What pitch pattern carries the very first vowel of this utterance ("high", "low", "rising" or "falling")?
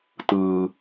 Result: high